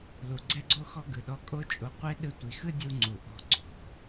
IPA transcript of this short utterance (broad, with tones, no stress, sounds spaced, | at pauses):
l u˨ ɡ͡ǀ ɛ˦ ɡ͡ǀ o˦ x ɔ˦ ɡ ɯ˨ ɗ ɔ˧ kʼ o˦ t͡ʃʼ o˧ qʷ e˦ ɗ ɯ˧ tʷ i˨ x ɯ˦ dʲ u˦ ŋ͡ǀ u˨ ʔ ɔ̤˧ ǀ o̤˨